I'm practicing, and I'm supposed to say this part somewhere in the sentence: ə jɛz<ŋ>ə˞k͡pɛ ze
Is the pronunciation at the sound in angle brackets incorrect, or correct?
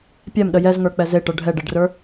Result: correct